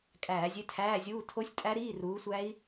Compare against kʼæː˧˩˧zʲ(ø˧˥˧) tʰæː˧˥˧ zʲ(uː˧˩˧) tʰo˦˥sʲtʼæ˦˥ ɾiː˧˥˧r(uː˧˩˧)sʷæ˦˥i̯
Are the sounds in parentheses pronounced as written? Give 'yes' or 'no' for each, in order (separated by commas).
yes, no, no